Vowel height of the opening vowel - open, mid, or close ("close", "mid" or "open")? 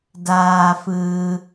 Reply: open